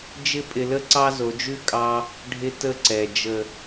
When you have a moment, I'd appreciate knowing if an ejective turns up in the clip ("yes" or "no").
yes